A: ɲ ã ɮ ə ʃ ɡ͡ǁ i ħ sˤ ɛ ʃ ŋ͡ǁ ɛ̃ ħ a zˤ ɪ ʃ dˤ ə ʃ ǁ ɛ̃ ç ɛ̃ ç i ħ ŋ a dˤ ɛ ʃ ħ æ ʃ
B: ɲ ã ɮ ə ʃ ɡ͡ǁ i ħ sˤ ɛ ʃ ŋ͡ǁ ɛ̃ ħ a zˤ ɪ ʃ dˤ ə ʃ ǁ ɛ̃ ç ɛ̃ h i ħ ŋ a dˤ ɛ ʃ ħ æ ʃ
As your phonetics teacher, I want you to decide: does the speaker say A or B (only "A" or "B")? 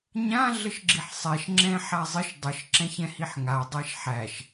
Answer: B